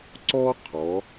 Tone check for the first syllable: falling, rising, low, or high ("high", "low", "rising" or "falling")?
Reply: high